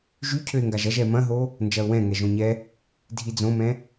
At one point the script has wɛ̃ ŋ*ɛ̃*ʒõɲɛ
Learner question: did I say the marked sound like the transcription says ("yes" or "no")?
no